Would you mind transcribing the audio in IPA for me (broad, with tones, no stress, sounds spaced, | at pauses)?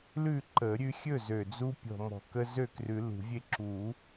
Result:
l ʉ˥˨ ǃ ə˨˩˦ ɾʲ ʉ˦ xʲ ɵ˥˨ z ø˨˩ d͡z u˦ pʲ ɔ̤˨˩ m ɔ̤˨˩ k ə˦ z ø˥˨ k r ʉ˨˩˦ l ṳ˨˩˦ vʲ e˦ ǁ u˨˩˦